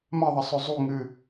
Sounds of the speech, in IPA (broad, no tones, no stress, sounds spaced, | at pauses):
m ɐ ðˤ ɐ sˤ ɵ zˤ u ŋ ɨ